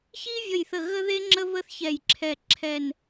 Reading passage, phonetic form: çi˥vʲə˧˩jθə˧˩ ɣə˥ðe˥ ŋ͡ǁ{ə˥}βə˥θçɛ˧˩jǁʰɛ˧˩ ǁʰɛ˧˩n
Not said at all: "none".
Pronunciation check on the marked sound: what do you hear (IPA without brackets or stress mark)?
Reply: ə˥